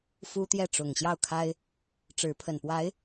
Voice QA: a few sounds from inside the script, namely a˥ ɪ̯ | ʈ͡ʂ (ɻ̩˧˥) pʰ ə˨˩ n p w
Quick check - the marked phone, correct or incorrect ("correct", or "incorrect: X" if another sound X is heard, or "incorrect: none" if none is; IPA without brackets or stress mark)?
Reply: correct